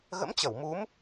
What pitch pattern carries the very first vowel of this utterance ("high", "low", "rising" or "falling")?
rising